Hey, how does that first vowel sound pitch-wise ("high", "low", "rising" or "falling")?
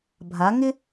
rising